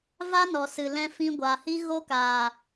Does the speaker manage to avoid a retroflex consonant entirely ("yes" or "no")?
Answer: yes